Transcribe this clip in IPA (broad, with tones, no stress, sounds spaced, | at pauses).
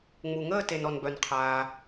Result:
ŋ͡m u˨ ŋ əː˥˧ t e˨ n ɔ˨ n b œ˨ n qʰ aː˨